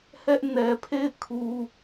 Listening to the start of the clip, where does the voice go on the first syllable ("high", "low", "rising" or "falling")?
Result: high